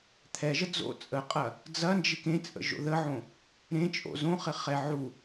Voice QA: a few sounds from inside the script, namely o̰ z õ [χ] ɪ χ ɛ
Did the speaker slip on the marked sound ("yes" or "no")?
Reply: no